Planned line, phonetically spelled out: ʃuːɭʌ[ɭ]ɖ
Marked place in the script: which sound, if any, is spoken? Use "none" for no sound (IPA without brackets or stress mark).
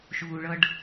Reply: none